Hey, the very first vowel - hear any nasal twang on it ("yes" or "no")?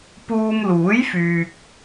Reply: no